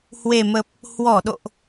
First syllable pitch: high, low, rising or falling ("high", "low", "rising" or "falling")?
low